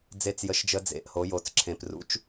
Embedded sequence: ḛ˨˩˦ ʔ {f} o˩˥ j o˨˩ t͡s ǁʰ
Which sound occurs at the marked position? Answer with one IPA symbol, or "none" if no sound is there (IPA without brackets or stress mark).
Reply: h